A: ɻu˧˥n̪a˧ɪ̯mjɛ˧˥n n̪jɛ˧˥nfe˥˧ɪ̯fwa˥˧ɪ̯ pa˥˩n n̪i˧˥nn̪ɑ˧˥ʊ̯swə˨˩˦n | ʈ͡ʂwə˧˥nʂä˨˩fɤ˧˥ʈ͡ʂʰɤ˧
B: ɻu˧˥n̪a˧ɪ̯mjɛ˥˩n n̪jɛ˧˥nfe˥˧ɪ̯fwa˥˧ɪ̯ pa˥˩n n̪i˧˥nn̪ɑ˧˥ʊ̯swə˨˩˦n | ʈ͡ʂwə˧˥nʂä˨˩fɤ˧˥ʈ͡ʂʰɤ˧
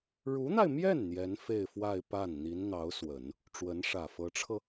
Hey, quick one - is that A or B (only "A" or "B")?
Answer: B